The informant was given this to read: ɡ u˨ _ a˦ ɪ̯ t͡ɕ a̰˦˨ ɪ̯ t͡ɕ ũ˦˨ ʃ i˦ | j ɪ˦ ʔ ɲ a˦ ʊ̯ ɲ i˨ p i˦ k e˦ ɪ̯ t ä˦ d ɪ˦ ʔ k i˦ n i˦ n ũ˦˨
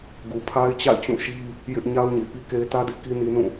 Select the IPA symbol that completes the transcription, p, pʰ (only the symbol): pʰ